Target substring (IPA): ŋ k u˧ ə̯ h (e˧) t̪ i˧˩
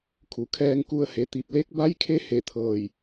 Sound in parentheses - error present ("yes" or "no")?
yes